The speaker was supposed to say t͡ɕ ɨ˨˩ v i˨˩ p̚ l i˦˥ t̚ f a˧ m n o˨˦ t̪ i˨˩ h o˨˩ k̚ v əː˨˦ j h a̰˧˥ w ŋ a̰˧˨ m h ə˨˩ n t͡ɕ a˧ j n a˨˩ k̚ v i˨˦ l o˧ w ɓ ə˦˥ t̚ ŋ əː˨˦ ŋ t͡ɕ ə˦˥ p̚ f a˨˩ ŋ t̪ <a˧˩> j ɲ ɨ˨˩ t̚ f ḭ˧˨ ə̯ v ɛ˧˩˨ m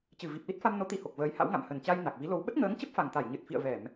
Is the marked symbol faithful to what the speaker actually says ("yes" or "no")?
yes